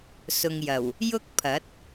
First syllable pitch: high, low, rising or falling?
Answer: low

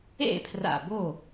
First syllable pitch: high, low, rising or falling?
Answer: falling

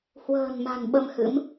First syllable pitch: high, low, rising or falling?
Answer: low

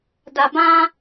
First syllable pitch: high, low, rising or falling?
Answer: low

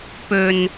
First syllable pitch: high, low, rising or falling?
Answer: low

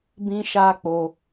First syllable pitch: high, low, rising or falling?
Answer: high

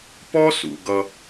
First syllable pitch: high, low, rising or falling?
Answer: high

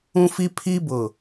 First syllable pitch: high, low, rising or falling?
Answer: high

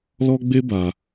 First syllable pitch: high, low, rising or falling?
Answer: high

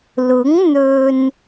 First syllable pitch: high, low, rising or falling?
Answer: rising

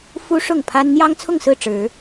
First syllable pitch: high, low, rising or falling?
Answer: high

